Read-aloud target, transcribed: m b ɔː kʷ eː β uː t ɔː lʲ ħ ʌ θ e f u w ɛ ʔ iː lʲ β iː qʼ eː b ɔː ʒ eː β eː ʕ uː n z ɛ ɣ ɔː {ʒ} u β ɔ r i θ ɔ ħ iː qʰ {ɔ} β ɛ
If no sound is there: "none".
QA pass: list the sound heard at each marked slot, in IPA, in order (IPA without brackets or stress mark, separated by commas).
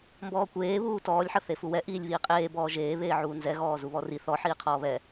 z, ɔː